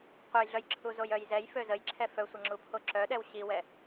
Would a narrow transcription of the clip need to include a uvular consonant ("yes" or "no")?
yes